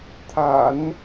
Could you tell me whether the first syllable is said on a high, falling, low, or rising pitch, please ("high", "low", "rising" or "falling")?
low